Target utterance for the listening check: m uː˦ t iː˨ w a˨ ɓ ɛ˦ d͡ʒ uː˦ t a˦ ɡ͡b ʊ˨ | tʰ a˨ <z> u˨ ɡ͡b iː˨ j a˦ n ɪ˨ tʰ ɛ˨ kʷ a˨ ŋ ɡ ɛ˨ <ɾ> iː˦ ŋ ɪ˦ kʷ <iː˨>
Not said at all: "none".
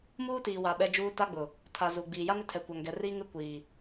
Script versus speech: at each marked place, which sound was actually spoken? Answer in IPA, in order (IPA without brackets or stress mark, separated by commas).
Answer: z, r, iː˨